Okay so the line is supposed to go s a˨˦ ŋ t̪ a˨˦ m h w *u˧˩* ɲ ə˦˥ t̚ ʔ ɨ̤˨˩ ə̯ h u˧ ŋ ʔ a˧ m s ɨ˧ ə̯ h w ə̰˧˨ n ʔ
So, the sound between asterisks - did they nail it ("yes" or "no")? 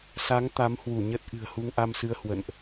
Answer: yes